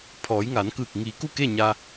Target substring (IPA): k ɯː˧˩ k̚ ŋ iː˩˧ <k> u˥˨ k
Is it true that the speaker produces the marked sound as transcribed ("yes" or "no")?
yes